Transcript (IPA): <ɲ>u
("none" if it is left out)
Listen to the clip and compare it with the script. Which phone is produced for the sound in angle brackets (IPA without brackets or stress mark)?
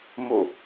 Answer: m